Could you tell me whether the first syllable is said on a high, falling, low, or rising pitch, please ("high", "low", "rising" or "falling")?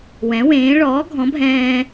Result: rising